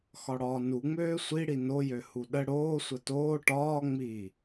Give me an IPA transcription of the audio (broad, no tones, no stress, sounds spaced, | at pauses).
x ɒ ɽ ɒː n u ŋ͡m øː sʷ i ɽ i n o j ø h u ɗ ə ɽ oː sʷ ə t oː ʈ ɒː ŋ͡m i